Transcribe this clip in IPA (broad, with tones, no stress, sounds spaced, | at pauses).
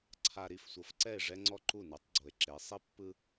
ǀʰ a˨ ɾ i˨ f sʷ ɤ˨ f ǀ ɛ˦˨ e̯ ʐ ɛ˦ ŋ͡ǀ ɔ˦ ǃ u˦˨ n ɯ˨˦ tˤ ɡ͡ǀ o˨ e̯ ǁ e˨˦ sˤ i˦ pː ɯ˦